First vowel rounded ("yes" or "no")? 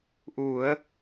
yes